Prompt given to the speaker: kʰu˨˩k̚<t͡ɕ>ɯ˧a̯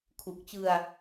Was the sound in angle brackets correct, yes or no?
yes